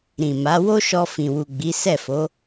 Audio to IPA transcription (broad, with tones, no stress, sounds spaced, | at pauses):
ɾ ĩ˨ m a˨˦ w o˦ ʃ ɔ˧ f ĩ˨ w u˨ ɡ͡b i˨˦ s ɛ˦˨ f o˨˦